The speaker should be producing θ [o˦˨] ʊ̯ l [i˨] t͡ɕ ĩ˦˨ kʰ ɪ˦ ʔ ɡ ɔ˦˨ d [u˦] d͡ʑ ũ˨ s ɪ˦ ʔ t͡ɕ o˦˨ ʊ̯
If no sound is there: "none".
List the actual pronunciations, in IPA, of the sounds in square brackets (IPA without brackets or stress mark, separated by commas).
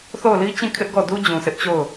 o˦˨, i˦, u˦